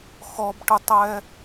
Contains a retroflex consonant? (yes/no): yes